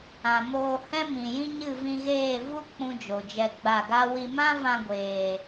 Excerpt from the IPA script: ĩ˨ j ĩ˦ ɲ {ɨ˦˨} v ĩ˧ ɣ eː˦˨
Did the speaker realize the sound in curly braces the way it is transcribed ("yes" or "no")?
yes